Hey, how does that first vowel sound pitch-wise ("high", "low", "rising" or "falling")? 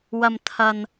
low